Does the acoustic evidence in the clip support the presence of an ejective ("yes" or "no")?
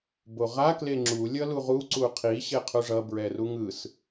no